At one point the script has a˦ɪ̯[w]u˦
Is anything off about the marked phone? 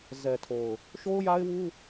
no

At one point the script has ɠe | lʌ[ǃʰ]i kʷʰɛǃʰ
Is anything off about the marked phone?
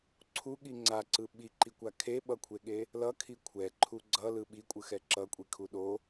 yes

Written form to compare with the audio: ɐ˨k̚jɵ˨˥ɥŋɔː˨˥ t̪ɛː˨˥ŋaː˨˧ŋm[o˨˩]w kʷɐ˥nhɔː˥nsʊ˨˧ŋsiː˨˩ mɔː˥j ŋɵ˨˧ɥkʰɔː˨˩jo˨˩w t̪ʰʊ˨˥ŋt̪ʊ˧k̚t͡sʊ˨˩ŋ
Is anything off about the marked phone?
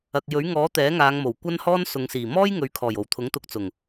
no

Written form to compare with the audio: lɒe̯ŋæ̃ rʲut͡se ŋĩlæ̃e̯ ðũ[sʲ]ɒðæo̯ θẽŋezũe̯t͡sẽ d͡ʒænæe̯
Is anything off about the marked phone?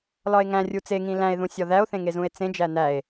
no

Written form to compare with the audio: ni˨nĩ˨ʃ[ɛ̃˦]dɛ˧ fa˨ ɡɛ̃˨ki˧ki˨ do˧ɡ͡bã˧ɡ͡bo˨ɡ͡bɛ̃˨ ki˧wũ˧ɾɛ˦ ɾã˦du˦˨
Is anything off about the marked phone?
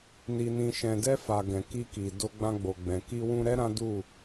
yes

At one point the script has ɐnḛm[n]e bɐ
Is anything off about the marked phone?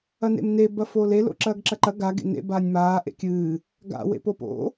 no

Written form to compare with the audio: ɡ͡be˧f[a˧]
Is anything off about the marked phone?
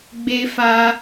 no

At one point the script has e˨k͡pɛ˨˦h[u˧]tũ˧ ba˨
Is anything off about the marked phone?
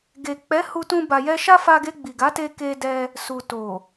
no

